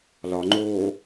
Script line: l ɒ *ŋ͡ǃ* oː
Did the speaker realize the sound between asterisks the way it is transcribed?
yes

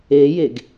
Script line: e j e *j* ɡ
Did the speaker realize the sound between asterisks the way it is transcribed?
no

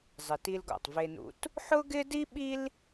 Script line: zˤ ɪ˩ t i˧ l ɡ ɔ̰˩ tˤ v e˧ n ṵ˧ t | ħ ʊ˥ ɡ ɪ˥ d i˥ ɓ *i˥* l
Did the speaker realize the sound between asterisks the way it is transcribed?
yes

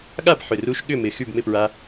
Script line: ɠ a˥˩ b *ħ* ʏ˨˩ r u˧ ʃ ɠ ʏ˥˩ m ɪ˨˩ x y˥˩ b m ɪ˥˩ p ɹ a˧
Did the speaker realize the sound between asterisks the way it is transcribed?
yes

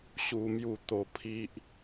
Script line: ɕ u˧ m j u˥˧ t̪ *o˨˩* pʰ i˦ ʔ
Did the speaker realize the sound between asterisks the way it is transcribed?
no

